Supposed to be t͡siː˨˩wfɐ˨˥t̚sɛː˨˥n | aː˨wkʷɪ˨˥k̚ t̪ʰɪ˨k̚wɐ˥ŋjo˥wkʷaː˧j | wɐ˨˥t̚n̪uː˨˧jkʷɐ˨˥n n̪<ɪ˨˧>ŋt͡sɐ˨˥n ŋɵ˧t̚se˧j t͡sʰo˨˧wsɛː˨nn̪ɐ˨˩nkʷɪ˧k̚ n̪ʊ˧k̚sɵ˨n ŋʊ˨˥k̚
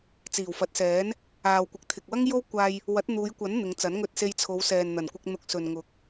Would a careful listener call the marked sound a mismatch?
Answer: no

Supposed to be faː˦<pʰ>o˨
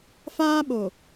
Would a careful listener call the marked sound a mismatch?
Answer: yes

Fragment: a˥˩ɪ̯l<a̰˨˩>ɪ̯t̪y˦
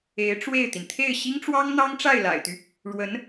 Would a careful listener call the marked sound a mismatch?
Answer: no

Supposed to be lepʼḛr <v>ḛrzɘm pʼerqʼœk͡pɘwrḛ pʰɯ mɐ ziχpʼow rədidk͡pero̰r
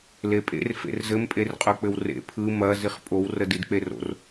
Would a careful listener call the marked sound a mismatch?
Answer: yes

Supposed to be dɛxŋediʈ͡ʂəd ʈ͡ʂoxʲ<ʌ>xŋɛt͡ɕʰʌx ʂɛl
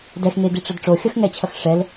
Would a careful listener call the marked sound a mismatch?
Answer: no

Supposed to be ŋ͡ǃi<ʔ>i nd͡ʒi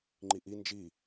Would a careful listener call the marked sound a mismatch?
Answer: no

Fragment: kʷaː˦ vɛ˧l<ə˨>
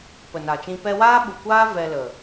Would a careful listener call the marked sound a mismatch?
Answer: no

